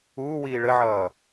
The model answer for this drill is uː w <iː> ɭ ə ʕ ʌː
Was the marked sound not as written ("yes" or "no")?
no